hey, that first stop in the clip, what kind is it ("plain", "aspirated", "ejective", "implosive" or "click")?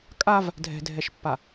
ejective